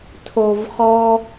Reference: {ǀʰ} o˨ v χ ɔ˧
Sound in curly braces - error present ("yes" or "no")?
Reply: yes